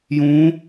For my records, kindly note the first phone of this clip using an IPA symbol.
j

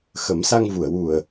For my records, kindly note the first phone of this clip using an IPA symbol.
x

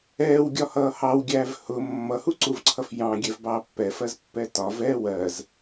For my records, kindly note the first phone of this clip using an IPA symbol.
ɛː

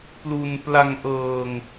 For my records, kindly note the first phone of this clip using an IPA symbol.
p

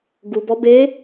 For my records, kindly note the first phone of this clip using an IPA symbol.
ɡ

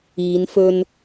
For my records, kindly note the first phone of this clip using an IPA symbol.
iː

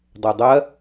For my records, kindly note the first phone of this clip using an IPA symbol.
dˤ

